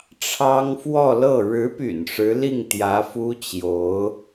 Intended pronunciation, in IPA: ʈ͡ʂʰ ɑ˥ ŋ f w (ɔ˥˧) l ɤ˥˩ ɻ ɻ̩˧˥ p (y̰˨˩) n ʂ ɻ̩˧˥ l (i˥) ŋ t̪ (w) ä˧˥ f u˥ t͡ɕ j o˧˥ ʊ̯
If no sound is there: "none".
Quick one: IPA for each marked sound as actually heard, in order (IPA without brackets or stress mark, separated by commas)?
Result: ɔ˥˧, y̰˨˩, i˥˩, j